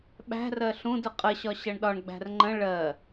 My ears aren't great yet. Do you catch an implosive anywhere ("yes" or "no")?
yes